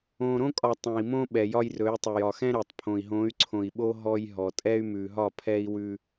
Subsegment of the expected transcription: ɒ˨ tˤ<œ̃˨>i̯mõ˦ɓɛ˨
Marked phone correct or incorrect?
incorrect: ɛ̃˨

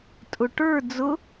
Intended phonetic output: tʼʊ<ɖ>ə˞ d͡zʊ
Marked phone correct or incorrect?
incorrect: ʈ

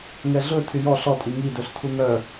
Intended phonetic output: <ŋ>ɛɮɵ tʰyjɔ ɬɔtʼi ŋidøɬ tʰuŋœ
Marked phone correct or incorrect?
correct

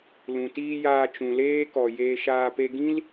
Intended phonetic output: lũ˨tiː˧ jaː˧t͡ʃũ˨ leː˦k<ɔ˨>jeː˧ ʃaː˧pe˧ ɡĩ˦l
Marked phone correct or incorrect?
correct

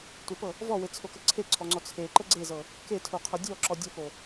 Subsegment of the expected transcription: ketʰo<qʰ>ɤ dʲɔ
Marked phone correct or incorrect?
correct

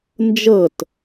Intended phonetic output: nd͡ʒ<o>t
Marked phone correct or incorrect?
incorrect: ɤ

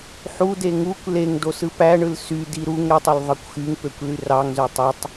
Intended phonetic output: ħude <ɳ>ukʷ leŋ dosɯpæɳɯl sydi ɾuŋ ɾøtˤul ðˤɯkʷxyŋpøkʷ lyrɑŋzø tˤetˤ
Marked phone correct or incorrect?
incorrect: ŋ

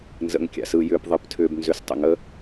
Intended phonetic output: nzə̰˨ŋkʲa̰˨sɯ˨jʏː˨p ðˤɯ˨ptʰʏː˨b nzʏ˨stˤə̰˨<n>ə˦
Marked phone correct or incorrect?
incorrect: ŋ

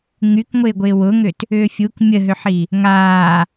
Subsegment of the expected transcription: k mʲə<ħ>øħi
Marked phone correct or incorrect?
incorrect: ɦ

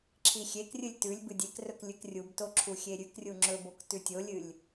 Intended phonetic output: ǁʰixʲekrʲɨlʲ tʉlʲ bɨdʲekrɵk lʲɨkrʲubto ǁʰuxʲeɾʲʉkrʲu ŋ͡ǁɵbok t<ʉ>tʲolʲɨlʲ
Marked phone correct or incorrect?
correct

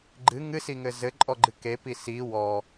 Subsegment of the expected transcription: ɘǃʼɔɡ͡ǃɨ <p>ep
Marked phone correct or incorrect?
incorrect: k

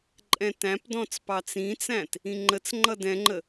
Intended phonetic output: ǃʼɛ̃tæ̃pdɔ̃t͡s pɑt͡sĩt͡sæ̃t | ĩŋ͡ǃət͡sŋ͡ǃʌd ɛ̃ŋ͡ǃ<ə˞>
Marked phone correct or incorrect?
incorrect: ə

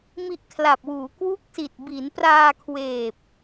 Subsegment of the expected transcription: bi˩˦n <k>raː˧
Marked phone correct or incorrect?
incorrect: p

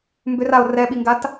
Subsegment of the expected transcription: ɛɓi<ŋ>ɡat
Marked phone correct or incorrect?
correct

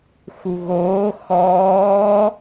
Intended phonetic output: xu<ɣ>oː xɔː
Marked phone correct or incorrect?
correct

